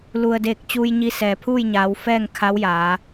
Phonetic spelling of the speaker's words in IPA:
l u˩ ə̯ d eː˧˩ k̚ t͡ɕ uː˧ j ɲ i˧ s ɛː˩ pʰ uː˥˨ j ɲ aː˩˧ w f ɛː˥˨ ŋ kʰ a˧˥ w j aː˩˧

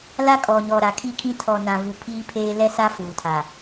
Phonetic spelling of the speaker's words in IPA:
l a˦ kʼ ɔ˨ ɲ ɔ˨ ɾ a˨ kʰ i˦˨ kʰ ĩ˦ tʰ ɔ˨ n ã˨ v u˨ pʰ iː˦ pʰ eː˦ l ɛ˦ s a˦ f uː˨ tʰ a˨

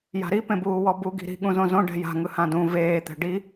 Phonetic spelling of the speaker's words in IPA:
j a̤ ɾ i p ẽ b uː w ɔ b u ɡ i̤ ɾ i̤ ɠ ũ z õ z õ ɖ ɛ̤ j a̤ ŋ ɯ h ã d ũ v eː t̪ ɛ̤ ɖ i

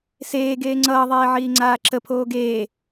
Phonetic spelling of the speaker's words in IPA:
s eː ɡ eː ŋ͡ǀ ʌː ðˤ eː ʕ iː ŋ͡ǀ aː ǁ ə pʰ oː ɡ eː

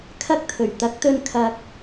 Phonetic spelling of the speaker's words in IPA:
kʰ ɐ˥ k̚ t̪ʰ ɵ˨˩ ɥ t̪ ɐ˨˥ k̚ t̪ ɵ˧ n kʰ ɐ˨ k̚

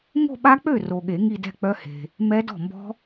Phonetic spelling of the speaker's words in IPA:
ŋ o̤˥˧ ɓ a˦˥ k͡p ø˥˩ r o˨ ɠ e˨˩˦ ŋ i˥˧ d ɛ̤˥˧ k͡p œ˦˥ h e̤˨ | m ɛ˦˥ d ɔ̤˥˩ m b ɔ̤˦˥

